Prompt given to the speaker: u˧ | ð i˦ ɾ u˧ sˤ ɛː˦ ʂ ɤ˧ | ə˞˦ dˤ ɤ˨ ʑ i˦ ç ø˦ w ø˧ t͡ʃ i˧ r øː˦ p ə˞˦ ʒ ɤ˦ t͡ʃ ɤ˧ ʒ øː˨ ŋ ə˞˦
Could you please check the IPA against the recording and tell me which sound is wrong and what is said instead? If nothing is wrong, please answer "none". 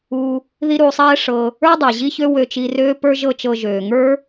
none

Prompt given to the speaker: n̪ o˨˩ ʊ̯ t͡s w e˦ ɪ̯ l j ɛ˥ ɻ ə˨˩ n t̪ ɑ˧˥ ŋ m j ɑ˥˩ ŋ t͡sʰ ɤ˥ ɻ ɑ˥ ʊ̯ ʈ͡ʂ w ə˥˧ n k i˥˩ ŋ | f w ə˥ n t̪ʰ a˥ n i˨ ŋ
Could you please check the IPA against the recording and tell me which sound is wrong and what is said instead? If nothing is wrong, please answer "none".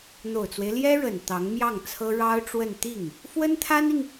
k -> t̪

